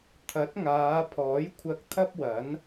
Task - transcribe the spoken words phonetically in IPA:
t̪ʰɐ˨˥t̚ŋaː˨˧pʰɔː˨˥jkʷʰɐ˧k̚ t̪ʰɐ˥p̚wɐ˨˥n

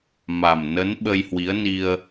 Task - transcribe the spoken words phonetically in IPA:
ma˨˩mnə˨˦n ɓə˧jhwi˨˦ə̯ni˧ə̯

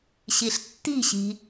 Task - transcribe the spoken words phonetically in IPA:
ɕiɬtːi̤ɕi̤

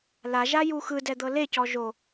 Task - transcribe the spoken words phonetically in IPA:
laʒaju xɯdɛd̪ɤ lecɔ ʒo

